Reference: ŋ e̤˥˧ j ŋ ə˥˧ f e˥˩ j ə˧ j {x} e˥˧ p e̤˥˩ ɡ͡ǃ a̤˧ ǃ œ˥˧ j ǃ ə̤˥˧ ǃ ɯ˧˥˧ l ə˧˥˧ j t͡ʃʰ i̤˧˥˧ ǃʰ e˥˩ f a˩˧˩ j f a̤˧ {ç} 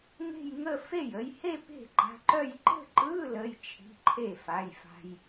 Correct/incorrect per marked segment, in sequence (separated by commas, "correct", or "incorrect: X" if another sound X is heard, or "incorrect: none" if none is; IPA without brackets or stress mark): incorrect: h, incorrect: j